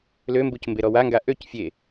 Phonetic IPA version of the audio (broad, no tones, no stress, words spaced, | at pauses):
lømbuc mbeɾɔwaŋɡa ʔøc fʲe